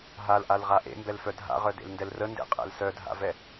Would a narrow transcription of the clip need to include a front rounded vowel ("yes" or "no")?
yes